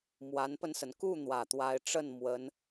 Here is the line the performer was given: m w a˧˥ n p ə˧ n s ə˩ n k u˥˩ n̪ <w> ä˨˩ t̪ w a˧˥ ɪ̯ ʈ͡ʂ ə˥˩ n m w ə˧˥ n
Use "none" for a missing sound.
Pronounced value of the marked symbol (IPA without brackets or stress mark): w